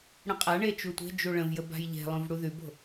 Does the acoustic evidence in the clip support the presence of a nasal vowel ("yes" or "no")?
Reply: yes